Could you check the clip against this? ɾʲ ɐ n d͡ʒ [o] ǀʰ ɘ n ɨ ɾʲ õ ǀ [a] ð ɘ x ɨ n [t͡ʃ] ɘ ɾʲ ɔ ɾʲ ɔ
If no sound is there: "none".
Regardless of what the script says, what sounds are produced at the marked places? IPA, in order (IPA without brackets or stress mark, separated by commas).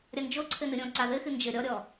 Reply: o, a, d͡ʒ